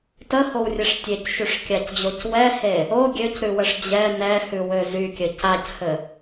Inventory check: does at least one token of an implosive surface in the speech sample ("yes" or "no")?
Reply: no